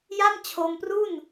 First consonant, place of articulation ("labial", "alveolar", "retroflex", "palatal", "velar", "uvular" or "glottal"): palatal